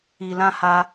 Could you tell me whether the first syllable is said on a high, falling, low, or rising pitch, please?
low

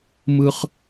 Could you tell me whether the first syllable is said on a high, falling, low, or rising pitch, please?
high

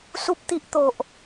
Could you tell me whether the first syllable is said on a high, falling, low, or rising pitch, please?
high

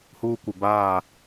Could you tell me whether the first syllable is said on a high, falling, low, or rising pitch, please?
high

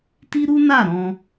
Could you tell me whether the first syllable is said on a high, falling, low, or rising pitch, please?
high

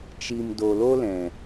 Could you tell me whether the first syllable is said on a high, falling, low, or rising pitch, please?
low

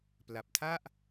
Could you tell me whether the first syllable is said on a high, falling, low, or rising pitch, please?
low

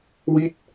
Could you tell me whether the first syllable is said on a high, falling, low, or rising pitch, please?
falling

